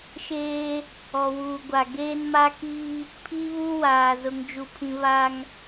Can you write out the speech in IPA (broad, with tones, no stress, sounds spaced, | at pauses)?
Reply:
ʃ eː˦ | ɔ˨ w uː˨ ɡʷ a˨ ɡ eː˦ n m a˦ k iː˦ | pʰ i˦ β u˦ w aː˨ z ʊ˦ ŋ d͡ʒ u˦ pʰ ĩ˦ β a˦ ŋ